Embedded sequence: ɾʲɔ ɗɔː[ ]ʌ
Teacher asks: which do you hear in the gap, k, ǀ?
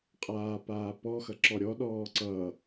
ǀ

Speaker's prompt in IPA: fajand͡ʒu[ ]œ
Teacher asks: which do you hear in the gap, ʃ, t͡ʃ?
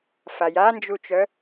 t͡ʃ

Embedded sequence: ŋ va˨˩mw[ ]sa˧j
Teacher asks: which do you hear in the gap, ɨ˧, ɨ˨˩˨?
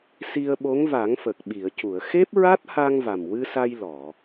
ɨ˧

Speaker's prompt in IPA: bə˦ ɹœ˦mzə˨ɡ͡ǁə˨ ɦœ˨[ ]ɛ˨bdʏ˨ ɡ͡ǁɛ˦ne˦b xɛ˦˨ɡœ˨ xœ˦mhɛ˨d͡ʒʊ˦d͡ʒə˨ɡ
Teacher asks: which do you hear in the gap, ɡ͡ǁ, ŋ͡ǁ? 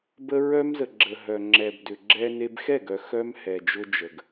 ŋ͡ǁ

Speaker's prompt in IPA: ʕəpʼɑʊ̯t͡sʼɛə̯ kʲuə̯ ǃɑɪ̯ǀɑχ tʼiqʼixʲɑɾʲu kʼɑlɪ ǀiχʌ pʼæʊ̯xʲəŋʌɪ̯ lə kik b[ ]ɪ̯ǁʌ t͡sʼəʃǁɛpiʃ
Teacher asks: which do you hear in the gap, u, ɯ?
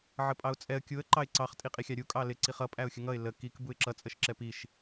u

